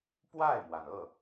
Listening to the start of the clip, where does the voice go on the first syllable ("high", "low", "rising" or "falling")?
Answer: falling